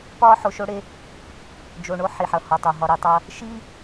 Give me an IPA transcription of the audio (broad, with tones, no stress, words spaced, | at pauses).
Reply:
pɒː˦ħo˨ʃo˦ɽe˦ | d͡ʒo˨ɳo˦ ħi˨ħʌ˨hɔ˨tˤo˨ ɦɒ˨ɾi˨tˤʌ˦ | ʃi˦